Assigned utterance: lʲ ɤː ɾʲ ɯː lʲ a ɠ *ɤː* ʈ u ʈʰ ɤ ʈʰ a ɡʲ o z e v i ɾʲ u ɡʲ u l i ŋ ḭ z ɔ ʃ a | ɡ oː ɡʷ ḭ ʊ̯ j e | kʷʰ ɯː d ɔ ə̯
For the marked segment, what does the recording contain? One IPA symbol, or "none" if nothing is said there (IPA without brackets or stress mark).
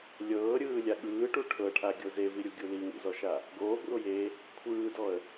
ɯː